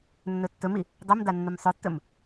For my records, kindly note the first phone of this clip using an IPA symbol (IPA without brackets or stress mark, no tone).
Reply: nː